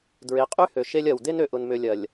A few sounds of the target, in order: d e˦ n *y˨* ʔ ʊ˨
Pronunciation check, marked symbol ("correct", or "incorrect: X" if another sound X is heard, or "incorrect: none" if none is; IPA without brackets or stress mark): incorrect: ø˨